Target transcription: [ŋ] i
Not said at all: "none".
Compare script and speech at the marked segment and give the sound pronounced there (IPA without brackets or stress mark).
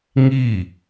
ŋ